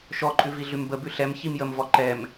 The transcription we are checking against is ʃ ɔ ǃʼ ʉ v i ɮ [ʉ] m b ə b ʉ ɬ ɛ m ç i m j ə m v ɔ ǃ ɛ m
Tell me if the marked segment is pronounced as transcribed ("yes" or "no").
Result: yes